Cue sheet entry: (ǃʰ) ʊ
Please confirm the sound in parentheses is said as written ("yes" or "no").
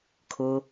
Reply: no